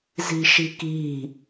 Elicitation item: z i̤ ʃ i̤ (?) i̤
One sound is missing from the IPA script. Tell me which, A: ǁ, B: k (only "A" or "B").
B